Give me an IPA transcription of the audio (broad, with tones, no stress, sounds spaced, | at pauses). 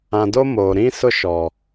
ã˨ d o˦ m oː˨ ɾ ĩ˦ s ʊ˦ ʃ ɔ˨